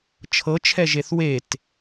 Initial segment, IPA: t͡ʃʰ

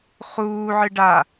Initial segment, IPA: χ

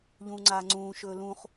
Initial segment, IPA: ʎ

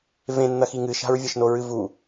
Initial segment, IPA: v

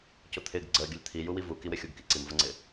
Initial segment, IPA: c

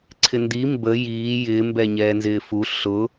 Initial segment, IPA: ǀʰ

